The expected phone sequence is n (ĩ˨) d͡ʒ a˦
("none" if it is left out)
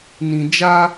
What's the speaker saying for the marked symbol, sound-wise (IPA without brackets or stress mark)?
ĩ˨